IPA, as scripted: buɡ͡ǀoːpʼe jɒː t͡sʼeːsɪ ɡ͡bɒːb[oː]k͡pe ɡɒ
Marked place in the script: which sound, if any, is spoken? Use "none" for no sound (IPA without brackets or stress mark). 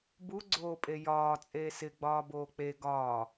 oː